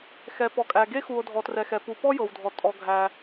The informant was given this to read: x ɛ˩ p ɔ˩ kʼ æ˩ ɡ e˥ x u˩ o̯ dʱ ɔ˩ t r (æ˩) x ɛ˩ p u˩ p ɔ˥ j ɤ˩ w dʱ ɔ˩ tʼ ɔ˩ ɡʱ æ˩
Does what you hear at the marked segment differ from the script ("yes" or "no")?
yes